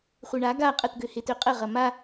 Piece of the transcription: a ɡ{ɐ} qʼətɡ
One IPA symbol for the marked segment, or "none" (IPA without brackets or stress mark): a